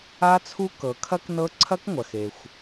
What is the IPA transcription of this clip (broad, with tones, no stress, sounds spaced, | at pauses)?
a˦˥ t͡sʰ u˦˥ k ɤ˩ kʰ ɐ˦˥ k n ɤ˦˥ ǀʰ ɐ˦˥ k ŋʷ ɐ˩ x e˩ xʷ